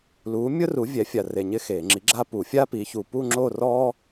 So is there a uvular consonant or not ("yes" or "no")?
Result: no